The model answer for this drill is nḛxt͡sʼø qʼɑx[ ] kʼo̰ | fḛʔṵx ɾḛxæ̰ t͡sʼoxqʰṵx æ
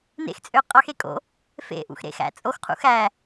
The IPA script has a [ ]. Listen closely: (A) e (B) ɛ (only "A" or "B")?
A